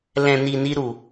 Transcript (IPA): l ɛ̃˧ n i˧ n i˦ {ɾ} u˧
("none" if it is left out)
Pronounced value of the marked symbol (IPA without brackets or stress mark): ɾ